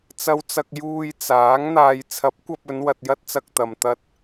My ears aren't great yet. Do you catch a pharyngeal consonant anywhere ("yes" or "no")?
no